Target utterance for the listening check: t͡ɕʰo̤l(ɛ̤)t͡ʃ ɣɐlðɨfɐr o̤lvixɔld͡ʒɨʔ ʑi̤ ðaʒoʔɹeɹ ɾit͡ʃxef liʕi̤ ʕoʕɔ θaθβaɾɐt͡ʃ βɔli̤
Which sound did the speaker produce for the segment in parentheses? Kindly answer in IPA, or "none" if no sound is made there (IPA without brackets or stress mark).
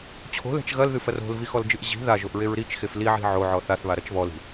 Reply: ɛ̤